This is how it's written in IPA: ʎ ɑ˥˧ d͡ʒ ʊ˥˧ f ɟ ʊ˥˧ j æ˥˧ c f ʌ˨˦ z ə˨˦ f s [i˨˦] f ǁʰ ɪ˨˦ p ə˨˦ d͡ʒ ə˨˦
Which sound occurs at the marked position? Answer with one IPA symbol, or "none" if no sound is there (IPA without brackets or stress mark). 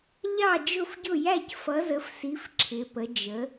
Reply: i˨˦